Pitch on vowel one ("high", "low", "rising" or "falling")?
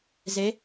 rising